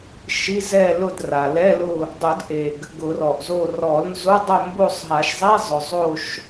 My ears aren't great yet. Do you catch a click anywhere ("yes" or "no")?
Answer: no